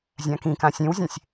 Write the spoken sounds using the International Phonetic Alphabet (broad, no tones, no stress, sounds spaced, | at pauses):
zʲ ã k ĩ k ã sʲ ẽ w zʲ ẽ sʲ